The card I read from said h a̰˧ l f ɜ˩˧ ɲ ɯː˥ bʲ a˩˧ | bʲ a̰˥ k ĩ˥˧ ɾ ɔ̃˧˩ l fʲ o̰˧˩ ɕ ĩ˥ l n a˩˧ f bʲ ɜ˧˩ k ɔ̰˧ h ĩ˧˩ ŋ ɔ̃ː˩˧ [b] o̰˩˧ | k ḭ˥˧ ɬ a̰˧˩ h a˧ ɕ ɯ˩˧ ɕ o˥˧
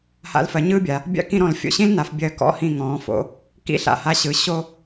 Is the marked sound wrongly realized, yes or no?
yes